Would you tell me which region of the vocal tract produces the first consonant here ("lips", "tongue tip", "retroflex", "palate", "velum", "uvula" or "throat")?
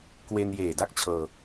velum